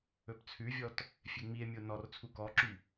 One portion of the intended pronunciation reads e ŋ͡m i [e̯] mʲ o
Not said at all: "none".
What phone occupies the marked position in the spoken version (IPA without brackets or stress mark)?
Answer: e̯